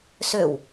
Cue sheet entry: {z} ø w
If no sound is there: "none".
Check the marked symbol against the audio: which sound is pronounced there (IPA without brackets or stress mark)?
s